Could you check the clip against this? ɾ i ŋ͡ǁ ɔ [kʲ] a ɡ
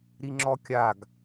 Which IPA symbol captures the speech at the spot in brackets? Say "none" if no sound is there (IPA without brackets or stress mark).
kʲ